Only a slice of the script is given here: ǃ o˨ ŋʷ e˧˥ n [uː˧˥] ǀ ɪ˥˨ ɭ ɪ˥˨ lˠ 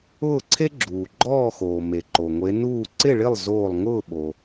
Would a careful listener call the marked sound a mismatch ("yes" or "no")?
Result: yes